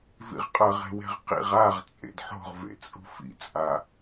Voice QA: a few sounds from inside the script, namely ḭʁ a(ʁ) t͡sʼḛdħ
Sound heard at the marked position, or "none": ʁ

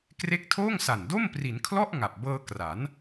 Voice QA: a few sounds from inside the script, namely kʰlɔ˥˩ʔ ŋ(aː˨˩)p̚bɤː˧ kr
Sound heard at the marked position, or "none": a˨˩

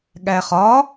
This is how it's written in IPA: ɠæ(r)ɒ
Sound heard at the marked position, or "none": χ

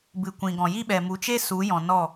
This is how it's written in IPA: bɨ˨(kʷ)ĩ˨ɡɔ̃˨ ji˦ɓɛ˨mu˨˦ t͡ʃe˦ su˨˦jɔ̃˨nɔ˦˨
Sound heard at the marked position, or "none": kʷ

